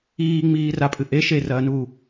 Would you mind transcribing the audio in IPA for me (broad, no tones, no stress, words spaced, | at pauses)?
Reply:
iːŋ͡miː rapʼɨ ʔe ʃerɐːnuː